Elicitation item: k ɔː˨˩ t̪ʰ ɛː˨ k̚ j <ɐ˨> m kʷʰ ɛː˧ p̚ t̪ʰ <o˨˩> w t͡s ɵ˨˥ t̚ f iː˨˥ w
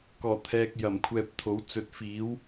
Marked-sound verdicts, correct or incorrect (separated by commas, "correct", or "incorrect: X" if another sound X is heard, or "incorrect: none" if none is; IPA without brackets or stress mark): incorrect: ɐ˨˩, incorrect: o˨˥